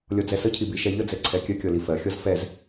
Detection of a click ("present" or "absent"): present